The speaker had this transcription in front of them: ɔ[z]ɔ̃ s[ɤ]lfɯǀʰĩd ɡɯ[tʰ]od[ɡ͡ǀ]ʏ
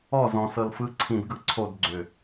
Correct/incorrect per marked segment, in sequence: correct, correct, incorrect: ǀʰ, correct

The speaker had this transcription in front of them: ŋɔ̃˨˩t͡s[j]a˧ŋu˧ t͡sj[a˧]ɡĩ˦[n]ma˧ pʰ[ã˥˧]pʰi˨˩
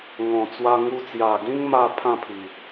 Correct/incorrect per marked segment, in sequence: incorrect: w, incorrect: a˨˩, incorrect: ŋ, correct

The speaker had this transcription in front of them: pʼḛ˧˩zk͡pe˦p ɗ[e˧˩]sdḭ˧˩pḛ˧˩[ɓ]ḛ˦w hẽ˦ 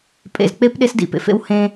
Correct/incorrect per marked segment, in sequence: incorrect: e˦, incorrect: f

